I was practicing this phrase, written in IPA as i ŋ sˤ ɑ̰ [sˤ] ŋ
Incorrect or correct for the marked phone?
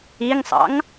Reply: incorrect: none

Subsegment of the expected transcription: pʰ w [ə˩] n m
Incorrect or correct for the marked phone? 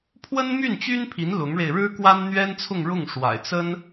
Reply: incorrect: ə˥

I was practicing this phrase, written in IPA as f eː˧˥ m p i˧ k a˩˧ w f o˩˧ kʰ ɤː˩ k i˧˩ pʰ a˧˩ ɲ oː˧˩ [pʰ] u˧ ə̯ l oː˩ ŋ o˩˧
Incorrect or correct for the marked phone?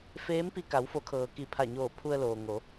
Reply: correct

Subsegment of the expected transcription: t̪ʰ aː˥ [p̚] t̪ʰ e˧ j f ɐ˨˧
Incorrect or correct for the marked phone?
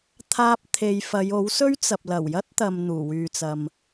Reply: correct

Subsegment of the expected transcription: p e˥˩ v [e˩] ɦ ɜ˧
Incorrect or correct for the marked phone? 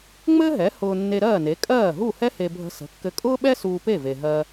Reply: correct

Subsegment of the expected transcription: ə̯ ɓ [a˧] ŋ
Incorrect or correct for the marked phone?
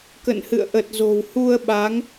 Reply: incorrect: a˨˦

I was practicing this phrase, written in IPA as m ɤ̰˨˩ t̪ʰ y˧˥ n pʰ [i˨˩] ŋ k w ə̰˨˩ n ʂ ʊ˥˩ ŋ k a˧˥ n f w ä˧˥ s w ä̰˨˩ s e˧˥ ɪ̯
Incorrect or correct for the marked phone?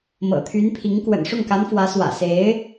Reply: incorrect: i˧˥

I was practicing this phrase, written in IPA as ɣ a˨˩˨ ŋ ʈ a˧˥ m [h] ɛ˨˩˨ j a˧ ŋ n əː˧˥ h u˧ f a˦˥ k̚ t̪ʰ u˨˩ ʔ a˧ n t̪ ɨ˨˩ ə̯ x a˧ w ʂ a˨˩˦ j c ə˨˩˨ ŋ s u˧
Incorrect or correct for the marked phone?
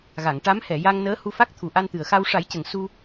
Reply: correct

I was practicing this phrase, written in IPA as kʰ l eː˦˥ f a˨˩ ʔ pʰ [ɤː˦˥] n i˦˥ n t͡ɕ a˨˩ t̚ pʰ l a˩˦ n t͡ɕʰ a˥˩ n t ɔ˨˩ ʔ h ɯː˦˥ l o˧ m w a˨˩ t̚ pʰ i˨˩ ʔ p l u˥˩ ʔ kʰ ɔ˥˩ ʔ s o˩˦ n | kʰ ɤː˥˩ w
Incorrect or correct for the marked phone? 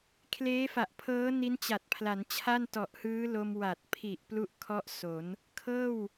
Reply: correct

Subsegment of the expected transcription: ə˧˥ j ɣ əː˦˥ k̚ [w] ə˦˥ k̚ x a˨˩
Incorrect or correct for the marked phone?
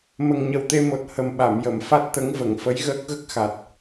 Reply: incorrect: ɣ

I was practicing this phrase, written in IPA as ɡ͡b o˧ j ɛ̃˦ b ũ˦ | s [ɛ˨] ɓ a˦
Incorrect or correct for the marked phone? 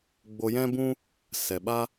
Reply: correct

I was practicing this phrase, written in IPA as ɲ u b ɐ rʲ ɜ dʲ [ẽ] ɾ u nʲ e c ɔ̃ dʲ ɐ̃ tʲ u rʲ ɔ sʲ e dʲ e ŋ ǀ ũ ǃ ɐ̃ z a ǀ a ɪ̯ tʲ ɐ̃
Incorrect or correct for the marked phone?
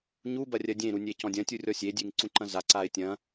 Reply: correct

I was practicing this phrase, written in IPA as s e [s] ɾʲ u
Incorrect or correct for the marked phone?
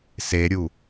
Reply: incorrect: none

